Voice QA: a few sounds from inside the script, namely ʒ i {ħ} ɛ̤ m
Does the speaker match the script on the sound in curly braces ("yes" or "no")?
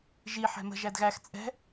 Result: yes